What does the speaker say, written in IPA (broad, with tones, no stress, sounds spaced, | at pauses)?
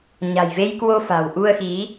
ɲ a̤˨˩ j v e˧ j k w o˧ f a̤˨˩ w ʔ u˧ ə̯ x i˨˦